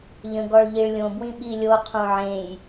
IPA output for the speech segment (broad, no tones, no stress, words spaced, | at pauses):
ʎə̃ɡɔɭ ʎiɭlʲõbwĩ ɓilʲoqʰõ ʕẽj